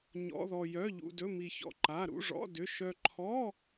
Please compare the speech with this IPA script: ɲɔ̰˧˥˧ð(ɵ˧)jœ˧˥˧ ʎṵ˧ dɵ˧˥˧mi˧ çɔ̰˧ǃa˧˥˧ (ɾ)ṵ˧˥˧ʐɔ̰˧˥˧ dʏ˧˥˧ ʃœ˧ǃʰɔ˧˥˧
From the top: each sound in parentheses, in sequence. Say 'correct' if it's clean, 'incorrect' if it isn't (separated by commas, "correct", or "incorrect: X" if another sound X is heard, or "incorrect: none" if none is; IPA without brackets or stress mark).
incorrect: ɔ˧, correct